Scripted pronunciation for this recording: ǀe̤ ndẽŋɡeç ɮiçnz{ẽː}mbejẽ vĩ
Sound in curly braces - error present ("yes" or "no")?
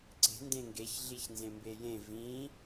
yes